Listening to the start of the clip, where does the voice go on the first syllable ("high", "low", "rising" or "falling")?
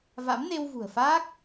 rising